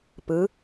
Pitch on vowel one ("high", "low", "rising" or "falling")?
rising